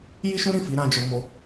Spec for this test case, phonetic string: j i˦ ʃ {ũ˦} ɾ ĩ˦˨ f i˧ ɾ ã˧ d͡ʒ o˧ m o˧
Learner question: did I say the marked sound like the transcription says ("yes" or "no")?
yes